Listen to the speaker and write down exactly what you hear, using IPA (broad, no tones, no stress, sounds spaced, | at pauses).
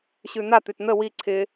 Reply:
ɕ ʉ n̪ a t̪ ʉ t n̪ ə w i ǀʰ ɪ